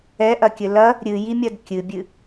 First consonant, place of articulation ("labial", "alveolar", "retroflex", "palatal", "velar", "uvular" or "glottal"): glottal